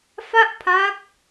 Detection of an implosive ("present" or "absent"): absent